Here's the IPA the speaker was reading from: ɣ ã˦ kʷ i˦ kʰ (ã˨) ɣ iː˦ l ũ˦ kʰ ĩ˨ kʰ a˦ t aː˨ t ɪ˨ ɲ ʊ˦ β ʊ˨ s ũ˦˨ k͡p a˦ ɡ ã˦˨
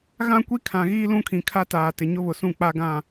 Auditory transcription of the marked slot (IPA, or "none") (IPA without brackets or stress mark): ã˨